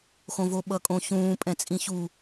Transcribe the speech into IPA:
x õ v o ɓ ʌ kʼ õ ç ũː pʼ ɛ̃ t͡sʼ ĩ ç u

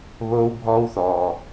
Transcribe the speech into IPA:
β oː˦ w bʱ ɔː˦ w θ ɔː˨

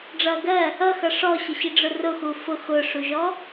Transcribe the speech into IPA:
ɖ͡ʐ ʌ ɡ ɜ | ʌ x ʌ ʂ ɔ ɕ ə ɕ i ɖ͡ʐ ʊ r ʊ x u f ʊ x ʊ ʂ u ʒ ɔ

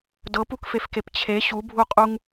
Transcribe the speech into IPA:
d ɤ p u k f e f k e p t͡ɕʰ e ɕ u bʱ u qʼ u ŋ

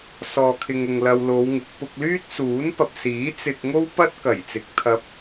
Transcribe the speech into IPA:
s ɔː˨ kʰ ɪ˨ ŋ ʊ˨ ŋ l ɐ˧ w l o˨˧ w ŋ ɪ˨˥ k̚ p ʊ˧ k̚ l yː˥ t̚ s uː˨˥ n p ɐ˨ p̚ s iː˨˥ t͡s ɪ˨ k̚ ŋ o˥ w p ɐ˥ t̚ k ɐ˨˩ j t͡s ɪ˨˥ k̚ t̪ʰ ɐ˧ p̚

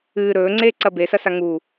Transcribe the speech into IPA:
ɨː ɾ ɵː ŋ͡ǀ eː ǀ ɐ b e s ɐ s a ŋ u

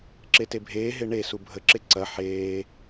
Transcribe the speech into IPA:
ǁ e t e bʱ eː ɦ e ɳ e s u bʱ ə ǁ e ǀ ɐ ħ eː

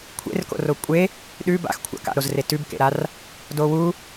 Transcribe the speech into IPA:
kʷʰ ḛ r k o̰ r o kʷʼ e | ɗ ʉ b a̰ x kʷʰ a̰ k a̰ ɾ o z r e t ʉ b k ḛ ɾ a r | d o w u

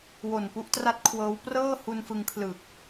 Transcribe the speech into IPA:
w o˨˩ n p u˦˥ ʔ t r a˥˩ t̚ kʰ w ɤː˦˥ w p r ɤː˥˩ h u˧ n f ɯ˧ ŋ kʰ l ɯː˨˩ k̚

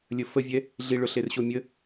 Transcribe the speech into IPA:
lʲ ə f ə vʲ ɛ | ɮ i ɭ ʊ ɬ e r ɕ o mʲ ə

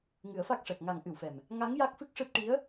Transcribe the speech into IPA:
ŋ ɨ˨˩˦ ə̯ f a˦˥ k̚ ʂ ɛ˨˩ k̚ ŋ a˨˩˨ ŋ ʔ ɨ˨˩˨ w f ɛ˨˩ m | ŋ a˧˥ ŋ j a˦˥ k̚ f ɨ˦˥ k̚ ʂ ɨ˦˥ t̚ ʈ i˧˥ ə̯

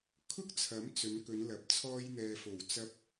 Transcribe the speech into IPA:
kʰ ʊ˥ k̚ t͡sʰ ɐ˨˥ m t͡s ɵ˨˧ n k ɵ˨˧ n l ɐ˨˥ p̚ t͡sʰ ɔː˧ j n̪ ɛː˨ f o˨˩ w t͡s ɐ˧ p̚

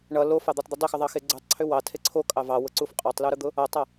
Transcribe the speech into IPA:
ɳ ʌ l o f ɑ d̪ o tˤ d̪ ʏ dˤ ʏ x ʊ ðˤ ɑ x e ɡ͡ǀ u tˤ ǀʰ ʏ w ɑ tʰ e ǀʰ o kʼ ɑ v ɑ w ʊ ǀ u f qʼ ɑ tˤ l u ɾ ʊ d̪ ʊ | ʌ tˤ ʌ

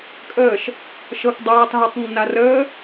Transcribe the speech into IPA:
kʼ əː ʃ | ʃ ɤ k dˤ ɤː tˤ ɦ ə tˤ nː a r əː

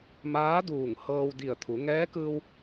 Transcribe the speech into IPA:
m aː˧˥ d uː˧˩ ŋ h ɤː˧ w d i˧˩ ə̯ t̪ʰ u˩˧ ŋ ɛː˧˥ k ɯː˧ w

